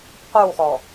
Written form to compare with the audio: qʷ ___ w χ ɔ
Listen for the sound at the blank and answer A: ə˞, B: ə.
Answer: A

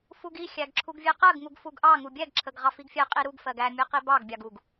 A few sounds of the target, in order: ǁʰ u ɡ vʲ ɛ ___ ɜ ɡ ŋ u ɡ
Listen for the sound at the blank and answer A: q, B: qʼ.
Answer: A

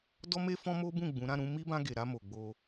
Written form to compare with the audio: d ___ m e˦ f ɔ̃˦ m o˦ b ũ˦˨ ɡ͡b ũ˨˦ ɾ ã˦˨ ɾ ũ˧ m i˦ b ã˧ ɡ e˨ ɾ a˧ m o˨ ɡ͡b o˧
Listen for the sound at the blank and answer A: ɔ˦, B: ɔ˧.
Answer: A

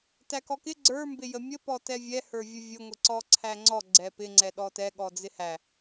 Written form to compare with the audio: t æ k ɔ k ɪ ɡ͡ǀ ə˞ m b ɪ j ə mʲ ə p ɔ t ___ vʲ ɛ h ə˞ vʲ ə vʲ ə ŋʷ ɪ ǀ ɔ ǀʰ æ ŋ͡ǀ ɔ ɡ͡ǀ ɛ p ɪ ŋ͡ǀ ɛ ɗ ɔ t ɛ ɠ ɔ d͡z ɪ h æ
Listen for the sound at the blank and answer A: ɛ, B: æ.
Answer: A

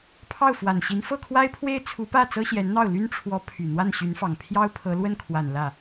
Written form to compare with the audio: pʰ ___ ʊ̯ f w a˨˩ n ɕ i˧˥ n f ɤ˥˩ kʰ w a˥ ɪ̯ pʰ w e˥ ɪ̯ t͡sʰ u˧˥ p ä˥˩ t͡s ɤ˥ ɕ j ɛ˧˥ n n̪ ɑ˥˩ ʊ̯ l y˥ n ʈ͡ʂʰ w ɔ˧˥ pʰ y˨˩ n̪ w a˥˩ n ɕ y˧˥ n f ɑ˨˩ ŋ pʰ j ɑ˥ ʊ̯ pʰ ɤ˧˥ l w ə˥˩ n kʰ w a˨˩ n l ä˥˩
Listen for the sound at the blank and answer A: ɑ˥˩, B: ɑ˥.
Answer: A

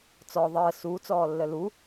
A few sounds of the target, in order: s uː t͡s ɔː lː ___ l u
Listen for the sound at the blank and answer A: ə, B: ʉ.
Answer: A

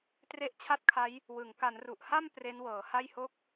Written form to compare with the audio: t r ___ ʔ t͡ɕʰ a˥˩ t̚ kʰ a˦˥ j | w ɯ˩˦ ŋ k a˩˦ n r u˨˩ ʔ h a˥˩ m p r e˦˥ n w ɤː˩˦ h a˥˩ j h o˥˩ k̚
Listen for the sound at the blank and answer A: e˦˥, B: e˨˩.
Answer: A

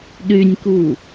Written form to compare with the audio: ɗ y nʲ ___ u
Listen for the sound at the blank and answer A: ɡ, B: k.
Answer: B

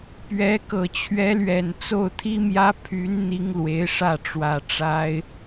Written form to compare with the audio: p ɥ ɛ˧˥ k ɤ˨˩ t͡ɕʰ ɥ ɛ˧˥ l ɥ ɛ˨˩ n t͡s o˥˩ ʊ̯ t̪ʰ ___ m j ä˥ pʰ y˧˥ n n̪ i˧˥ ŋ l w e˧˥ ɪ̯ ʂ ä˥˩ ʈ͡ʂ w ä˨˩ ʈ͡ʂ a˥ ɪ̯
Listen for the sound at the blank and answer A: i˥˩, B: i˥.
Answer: B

